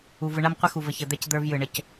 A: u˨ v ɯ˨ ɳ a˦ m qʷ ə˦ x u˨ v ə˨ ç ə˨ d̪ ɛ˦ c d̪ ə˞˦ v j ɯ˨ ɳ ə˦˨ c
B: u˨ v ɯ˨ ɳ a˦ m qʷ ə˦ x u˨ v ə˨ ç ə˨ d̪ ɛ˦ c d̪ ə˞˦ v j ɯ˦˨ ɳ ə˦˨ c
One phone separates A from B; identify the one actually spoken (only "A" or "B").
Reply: A